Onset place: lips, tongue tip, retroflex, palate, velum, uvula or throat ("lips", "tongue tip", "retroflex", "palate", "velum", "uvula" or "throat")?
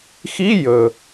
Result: velum